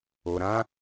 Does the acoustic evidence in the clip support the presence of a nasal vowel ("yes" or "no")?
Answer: yes